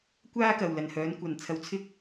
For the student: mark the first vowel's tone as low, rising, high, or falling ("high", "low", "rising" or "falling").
high